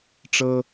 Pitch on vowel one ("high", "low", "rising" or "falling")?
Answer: high